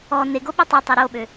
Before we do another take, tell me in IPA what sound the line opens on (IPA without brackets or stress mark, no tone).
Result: ɔ